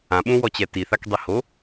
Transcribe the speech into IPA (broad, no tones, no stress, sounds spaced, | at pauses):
ã ɓ ũ w ɔ t͡ɕ ɛ t i θ a k dˤ i h o